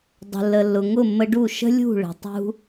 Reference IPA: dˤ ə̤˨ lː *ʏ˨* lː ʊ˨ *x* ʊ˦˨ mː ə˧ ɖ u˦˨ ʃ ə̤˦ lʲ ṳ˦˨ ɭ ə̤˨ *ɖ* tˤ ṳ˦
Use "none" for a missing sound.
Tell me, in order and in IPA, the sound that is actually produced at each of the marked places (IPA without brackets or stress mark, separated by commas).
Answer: ə˨, ŋ, none